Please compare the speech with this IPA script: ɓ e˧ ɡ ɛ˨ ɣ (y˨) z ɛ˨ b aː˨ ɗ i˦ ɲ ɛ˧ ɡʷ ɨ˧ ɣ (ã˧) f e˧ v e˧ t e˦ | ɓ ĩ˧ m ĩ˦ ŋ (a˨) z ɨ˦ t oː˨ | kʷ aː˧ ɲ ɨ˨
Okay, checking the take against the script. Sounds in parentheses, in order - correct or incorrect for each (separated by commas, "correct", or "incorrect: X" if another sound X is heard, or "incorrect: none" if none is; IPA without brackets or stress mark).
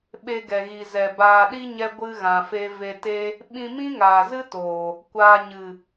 incorrect: i˨, incorrect: ã˨, incorrect: aː˨